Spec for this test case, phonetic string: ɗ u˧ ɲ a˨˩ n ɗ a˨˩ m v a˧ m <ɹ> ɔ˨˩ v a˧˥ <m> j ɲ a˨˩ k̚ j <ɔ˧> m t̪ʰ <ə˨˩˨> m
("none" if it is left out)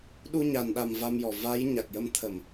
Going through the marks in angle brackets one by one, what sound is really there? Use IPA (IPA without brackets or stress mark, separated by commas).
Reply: j, none, ə˧, ə˨˩˨